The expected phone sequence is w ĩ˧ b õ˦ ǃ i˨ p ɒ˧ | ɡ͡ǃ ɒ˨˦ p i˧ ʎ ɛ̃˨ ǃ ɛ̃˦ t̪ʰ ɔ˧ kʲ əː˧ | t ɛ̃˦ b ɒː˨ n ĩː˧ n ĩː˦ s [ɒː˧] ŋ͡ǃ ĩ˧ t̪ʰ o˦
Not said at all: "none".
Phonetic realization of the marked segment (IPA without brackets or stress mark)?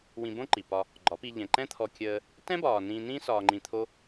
ɒː˧